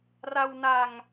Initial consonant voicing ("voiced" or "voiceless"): voiced